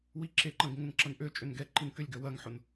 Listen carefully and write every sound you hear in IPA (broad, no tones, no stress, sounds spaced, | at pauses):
w i ǁ e ǃ ɐ̃ ɡ ŋ ʊ n ǁ ɐ n ʔ ø t͡ʃʼ ø n ɡ ɛ ǃ i n k ʏ lʲ ɡ œ w ɐ ŋ ħ ʊ n